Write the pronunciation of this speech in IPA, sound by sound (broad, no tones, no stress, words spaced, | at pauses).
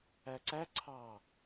æǀæ ǀʰɑ